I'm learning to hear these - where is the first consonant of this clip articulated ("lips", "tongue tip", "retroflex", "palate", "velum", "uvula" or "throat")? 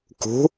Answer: velum